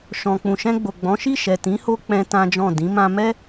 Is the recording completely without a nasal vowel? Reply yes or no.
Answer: no